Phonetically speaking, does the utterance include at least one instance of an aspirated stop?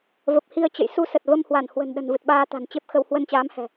no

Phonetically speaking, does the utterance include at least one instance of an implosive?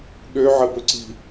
yes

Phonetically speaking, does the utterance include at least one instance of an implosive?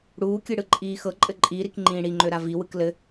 no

